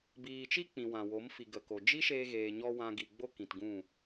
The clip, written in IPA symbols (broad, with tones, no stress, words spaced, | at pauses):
biː˨t͡ʃi˦ k͡pĩ˨wã˨wo˨˦m fi˨ ɡə˨ko˨ d͡ʒi˦ʃeː˧ɣeː˨ɲɔ˧ wã˧ɡi˨ɡ͡bo˦ kĩ˨tɡũ˦˨